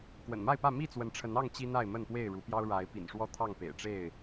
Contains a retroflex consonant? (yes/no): yes